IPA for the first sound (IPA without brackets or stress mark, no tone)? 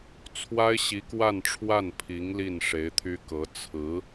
t͡sʰ